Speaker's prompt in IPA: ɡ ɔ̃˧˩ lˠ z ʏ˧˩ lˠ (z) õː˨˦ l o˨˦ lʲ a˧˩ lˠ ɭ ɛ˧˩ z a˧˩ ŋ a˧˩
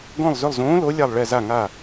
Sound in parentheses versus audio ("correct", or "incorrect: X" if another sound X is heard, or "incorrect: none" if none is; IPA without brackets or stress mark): correct